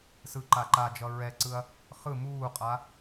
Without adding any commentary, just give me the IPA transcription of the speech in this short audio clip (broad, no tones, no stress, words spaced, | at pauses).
sɯǃa ǃad͡ʒʌ ɹɛǀɯɐ̯ | χɯ muːqʼa